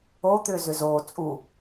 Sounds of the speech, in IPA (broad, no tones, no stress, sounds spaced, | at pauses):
o t̪ ʏː z ʏ z oː t͡sʼ u